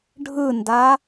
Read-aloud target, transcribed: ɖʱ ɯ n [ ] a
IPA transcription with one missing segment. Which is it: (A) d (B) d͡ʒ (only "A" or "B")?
A